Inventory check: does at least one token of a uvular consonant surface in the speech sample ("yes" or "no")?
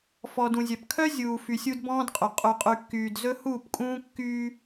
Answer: yes